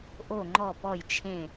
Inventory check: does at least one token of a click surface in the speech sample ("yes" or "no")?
yes